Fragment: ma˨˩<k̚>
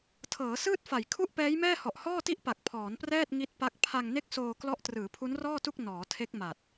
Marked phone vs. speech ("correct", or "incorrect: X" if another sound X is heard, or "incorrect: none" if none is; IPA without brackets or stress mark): incorrect: t̚